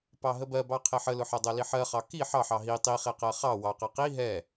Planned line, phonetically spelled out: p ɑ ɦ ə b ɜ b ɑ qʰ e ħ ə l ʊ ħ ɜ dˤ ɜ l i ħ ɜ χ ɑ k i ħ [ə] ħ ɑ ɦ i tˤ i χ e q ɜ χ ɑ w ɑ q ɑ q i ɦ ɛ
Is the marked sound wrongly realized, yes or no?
yes